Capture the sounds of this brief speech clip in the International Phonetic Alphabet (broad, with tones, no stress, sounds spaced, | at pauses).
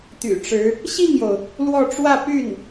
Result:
t̪ y̰˨˩ ʈ͡ʂ ɻ̩˧˥ | ɕ i˥˩ ŋ j o˩ ʊ̯ | l w ɔ˥˧ ʈ͡ʂ w ä˥˧ p y˥˩ n